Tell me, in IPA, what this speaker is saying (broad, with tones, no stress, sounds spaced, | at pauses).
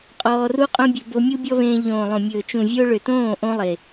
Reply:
qʼ ɔː˧ r u˦ qʼ õ˦ bʲ ɵ˧ b o˧ mʲ u˦ bʲ ɔ˦ β ẽː˧ ʎ õː˨ lˠ õ˨ mʲ ɵː˨ t͡ʃ ũ˨ vʲ o˧ ɭ ø˨ t õː˦˨ ʔ õ˦ lˠ e˨